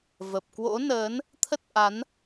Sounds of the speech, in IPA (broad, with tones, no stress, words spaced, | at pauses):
və˨˩p̚kwo̰˧˥nəː˨˦n | t̪ʰə˦˥t̚ʔa˨˦n